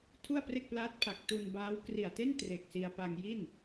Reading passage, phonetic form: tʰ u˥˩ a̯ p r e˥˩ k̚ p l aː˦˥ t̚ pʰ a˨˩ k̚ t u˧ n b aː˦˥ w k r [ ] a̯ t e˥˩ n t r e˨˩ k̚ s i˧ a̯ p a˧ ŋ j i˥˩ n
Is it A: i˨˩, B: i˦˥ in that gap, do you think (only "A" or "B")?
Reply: A